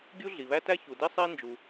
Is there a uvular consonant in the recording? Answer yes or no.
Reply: no